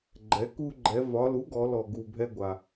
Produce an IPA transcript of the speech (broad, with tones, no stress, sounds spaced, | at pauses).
ɡ͡ǃ ɛ˩˥ k u˧ ɡ͡ǃ ɛ˩˧ v ɒ˩˧ l u˩˥ ɡ ɔ˩˧ l ɔ˨˩ ɡ u˨˩ bʱ ɛ˧ ɡʷ a˨˩